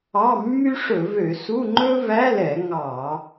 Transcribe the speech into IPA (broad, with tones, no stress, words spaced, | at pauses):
ɑ˧˥˧mːy˥ ʂɵ˧˩˧vø˧˩˧ su˧˥˧ŋ͡ǃɵ˥ væ˧˥˧lɛ˧˩˧ ŋɑ˧˩˧